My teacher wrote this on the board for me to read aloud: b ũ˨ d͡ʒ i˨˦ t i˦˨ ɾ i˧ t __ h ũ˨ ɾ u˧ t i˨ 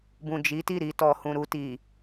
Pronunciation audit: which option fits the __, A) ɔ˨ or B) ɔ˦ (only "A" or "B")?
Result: A